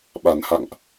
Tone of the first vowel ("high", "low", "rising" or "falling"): low